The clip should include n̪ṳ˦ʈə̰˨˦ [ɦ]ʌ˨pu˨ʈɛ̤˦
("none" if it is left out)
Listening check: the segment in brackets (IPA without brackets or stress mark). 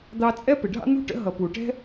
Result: ɦ